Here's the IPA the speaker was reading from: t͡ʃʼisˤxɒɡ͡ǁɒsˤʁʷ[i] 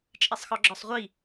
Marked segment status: correct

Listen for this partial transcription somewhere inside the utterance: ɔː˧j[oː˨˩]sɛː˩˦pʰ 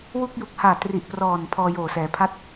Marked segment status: correct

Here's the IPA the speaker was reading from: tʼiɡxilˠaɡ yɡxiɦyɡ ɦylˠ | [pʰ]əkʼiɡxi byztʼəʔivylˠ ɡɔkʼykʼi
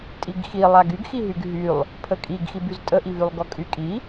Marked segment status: correct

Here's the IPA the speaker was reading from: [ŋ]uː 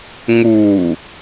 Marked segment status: correct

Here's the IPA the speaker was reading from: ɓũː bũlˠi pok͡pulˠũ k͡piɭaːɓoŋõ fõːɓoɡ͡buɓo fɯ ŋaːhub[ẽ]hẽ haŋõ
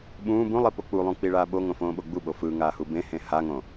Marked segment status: correct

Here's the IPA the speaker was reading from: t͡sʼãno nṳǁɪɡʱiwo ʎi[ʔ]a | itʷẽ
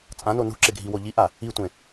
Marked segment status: correct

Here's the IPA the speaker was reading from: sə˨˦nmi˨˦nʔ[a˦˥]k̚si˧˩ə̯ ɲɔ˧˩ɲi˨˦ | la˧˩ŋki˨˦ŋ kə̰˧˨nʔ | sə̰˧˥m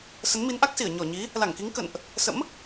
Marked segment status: correct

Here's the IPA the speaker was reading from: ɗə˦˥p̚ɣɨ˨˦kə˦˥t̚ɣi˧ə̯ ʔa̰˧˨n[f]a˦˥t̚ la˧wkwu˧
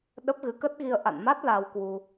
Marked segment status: incorrect: m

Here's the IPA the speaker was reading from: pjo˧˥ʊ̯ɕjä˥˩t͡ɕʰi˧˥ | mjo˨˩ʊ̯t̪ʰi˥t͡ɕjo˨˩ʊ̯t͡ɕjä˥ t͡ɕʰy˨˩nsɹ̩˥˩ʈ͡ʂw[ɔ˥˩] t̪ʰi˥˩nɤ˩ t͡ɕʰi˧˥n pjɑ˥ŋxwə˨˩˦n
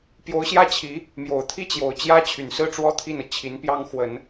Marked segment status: incorrect: ɔ˥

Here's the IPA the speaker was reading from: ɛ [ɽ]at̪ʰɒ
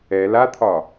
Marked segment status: incorrect: l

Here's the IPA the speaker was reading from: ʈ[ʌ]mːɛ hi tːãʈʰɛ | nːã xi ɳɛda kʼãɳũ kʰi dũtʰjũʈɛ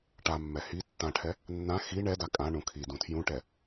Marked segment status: incorrect: a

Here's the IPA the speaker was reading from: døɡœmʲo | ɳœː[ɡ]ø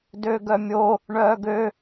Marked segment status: correct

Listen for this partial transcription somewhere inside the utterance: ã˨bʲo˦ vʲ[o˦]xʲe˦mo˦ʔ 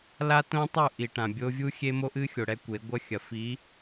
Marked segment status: incorrect: u˦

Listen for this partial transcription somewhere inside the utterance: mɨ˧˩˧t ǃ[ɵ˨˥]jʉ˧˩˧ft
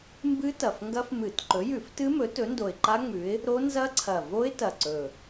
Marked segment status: correct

